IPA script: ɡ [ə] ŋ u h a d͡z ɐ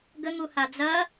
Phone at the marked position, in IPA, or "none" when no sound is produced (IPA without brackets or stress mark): ə